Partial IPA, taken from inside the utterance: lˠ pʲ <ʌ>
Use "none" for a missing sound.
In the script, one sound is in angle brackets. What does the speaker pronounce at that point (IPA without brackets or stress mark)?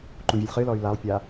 a